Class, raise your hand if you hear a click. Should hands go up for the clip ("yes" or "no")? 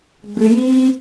no